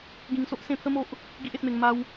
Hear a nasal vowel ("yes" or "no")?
yes